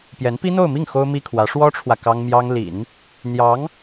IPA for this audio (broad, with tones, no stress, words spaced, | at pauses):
pjɛ˧˥npi˥n̪o˥˧ʊ̯mi˥˩ŋ xo˥ʊ̯mi˥kʰwä˧˥ ʂwɔ˥ʈ͡ʂʰwä˨ kɑ˥ŋmjɑ˥ŋ lḭ˨˩˦n | n̪jɑ˧˥ŋ